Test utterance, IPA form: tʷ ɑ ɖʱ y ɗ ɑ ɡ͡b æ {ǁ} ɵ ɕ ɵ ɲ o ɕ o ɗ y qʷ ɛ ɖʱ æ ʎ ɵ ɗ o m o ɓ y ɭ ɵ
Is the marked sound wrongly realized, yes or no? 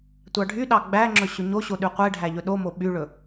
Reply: yes